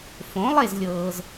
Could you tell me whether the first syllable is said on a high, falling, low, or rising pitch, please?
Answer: rising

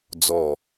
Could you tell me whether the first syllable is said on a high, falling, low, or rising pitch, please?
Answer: low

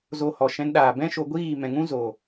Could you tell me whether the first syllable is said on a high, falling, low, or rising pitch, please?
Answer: low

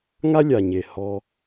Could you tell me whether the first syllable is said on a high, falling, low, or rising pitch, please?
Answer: high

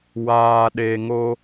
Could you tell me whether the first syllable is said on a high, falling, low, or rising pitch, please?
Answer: low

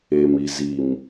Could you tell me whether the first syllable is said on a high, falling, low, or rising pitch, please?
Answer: low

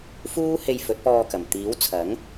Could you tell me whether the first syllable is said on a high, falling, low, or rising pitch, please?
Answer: high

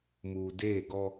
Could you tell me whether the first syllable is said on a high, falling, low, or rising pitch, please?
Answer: low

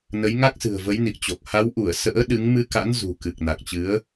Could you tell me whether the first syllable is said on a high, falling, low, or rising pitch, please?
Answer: rising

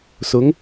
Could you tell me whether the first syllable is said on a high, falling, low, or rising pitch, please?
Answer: rising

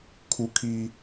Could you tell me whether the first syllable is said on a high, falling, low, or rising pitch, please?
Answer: high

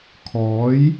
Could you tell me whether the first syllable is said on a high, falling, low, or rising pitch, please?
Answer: rising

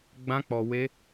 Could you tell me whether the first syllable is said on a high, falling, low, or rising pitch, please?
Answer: high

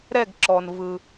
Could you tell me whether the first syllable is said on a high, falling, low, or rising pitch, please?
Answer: falling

